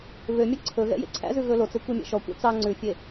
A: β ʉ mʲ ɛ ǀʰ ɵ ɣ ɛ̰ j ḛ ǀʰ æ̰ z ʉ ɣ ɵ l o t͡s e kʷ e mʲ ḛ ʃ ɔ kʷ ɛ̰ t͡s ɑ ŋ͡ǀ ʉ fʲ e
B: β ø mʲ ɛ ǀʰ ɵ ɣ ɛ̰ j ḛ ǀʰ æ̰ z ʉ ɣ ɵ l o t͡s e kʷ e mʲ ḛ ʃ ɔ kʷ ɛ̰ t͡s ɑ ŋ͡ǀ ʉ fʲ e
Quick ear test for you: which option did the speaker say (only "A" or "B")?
B